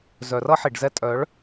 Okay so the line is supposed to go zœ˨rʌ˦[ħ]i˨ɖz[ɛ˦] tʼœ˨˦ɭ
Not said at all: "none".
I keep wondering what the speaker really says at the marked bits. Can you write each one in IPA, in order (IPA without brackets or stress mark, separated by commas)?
ħ, ɛ˦